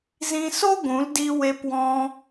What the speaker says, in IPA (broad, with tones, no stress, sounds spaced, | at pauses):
z ĩ˧ s o˦ ɡʷ ũ˨˦ l d i˧ w e˧ p w ɔ̃˧